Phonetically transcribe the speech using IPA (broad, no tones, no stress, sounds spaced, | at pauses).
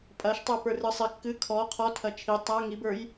pʼ ɐ ʃ tˤ ə˞ p ə˞ r ɨ sˤ ɪ kː ɨ kʰ ɔ qʰ ɔ tʰ ɐ t͡ʃʰ i tˤ a ŋ i b ə˞ j